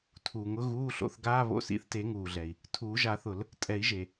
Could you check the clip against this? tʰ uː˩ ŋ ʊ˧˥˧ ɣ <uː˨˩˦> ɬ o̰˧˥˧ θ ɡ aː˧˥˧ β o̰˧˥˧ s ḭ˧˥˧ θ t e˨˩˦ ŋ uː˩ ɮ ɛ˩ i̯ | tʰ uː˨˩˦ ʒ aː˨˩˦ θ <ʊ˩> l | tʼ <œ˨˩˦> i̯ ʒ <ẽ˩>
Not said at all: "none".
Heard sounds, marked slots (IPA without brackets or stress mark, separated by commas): uː˧˥˧, ʊ˨˩˦, ɛ˨˩˦, e˩